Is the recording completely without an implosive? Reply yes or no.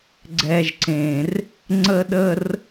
no